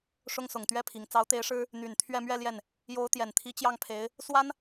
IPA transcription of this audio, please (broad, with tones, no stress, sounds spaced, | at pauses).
ʂ ʊ˥ ŋ s ʊ˨˩ ŋ t̪ ɥ ɛ˥ pʰ i˨˩ ŋ t͡s ɑ˧˥ ʊ̯ t̪ e˧˥ ɪ̯ ʂ ɻ̩˥ | n̪ y˨˩ n t̪ʰ ɥ ɛ˥˧ m ɥ ɛ˥˧ l j ɛ˥˩ n | j o˧˥ ʊ̯ t̪ j ɛ˨˩ n t̪ʰ i˧˥ t͡ɕ j ɑ˥˩ ŋ pʰ e˧˥ ɪ̯ | s w a˥ n